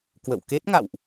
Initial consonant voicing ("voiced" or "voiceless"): voiceless